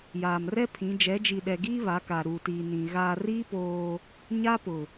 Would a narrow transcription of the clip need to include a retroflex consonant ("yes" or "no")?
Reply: no